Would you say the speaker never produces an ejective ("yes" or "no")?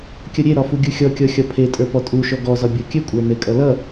no